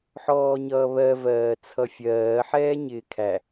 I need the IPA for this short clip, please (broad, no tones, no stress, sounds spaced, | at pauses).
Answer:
ħ ɔː ɲ ʌː β ɜ v ɜː t͡sʰ ʌ fʲ ɜː ħ ɛː ɲ ɪː kʰ æ